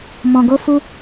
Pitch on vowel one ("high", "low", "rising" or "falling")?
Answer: low